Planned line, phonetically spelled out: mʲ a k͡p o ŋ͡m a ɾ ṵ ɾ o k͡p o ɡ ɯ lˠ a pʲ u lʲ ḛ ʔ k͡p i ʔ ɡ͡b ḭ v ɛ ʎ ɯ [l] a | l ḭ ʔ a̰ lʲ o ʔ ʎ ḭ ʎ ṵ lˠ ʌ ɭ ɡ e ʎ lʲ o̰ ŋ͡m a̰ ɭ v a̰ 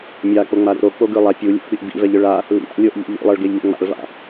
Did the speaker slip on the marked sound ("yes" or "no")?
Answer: yes